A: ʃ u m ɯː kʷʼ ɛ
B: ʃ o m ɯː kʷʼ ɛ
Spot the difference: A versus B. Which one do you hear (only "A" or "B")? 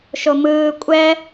B